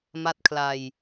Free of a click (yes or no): yes